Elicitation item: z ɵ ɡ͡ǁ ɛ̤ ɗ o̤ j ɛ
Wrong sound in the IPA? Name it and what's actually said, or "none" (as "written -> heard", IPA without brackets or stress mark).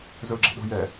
none